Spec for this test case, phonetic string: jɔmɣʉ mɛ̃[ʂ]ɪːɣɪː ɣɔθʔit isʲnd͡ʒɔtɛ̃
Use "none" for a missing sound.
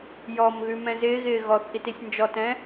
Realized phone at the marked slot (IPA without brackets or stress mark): z